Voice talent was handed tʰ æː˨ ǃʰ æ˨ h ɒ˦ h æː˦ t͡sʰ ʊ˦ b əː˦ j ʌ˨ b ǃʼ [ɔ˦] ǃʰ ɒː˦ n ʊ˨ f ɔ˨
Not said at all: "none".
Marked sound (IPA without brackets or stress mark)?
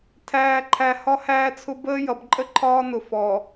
ə˦